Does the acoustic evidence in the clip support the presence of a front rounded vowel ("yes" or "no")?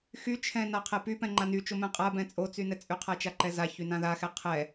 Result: yes